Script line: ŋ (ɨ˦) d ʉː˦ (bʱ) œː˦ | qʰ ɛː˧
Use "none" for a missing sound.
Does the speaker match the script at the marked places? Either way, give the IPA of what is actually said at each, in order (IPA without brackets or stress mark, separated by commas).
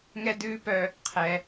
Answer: ɛ˦, p